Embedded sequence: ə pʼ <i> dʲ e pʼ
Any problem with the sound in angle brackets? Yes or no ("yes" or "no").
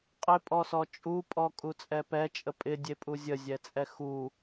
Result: yes